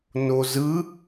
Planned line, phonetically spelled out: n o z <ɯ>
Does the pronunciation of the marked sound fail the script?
no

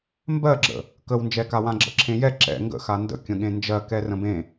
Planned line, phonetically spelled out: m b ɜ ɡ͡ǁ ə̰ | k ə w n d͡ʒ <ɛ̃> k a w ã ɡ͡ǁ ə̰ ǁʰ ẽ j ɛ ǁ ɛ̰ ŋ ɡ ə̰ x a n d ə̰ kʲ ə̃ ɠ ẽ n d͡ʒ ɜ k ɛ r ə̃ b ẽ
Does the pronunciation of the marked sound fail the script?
yes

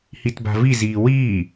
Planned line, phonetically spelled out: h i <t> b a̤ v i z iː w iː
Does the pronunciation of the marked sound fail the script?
no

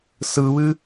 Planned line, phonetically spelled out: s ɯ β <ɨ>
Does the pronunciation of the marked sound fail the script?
no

